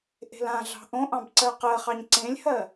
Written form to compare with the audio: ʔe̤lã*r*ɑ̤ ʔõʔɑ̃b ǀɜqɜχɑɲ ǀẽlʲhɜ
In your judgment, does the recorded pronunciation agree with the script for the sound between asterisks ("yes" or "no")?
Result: no